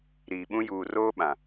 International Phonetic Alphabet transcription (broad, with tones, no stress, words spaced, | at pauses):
ɾiː˨ɓũ˦ juː˨ roː˦ɓã˨